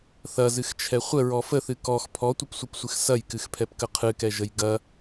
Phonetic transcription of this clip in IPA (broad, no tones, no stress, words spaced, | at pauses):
θɐzɨxt͡ʃʰɛ χʷəɹɔ fəθɨ kɔx pʰɔtʷəpsʷɨpsʷɨx sɐjkɨxpʰɛpkə qʰɨkɛʒəj ɡɐ